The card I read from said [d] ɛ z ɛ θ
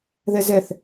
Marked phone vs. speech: incorrect: ð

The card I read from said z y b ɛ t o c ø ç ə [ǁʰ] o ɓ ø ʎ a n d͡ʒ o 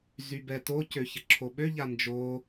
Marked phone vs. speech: correct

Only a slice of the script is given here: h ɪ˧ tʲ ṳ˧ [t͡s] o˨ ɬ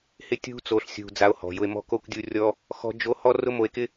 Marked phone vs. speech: correct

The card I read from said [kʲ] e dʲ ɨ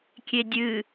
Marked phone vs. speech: correct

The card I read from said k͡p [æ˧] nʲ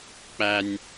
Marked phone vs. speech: correct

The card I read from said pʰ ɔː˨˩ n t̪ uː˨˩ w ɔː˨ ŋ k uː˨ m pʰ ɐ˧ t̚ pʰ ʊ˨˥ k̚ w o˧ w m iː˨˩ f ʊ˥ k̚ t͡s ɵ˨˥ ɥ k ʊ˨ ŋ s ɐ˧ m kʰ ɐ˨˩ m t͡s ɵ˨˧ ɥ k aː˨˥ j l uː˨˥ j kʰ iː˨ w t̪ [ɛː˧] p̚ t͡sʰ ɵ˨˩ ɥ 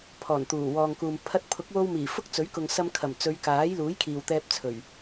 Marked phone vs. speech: correct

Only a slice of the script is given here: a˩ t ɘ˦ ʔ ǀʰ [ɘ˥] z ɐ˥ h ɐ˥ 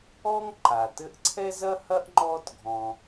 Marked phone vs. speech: incorrect: ɛ˥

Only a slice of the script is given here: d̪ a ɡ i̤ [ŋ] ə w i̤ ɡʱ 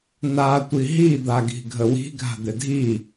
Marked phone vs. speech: incorrect: ɡʱ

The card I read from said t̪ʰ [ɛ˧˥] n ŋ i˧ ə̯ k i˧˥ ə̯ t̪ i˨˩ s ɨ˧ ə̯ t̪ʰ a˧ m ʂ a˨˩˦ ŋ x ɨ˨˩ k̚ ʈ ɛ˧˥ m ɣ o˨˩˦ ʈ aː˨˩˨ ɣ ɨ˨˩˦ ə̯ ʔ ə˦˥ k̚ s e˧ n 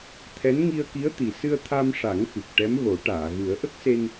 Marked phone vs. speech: correct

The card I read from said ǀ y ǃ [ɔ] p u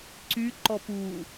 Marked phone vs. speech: correct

